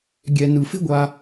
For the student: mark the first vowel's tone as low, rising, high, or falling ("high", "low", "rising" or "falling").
low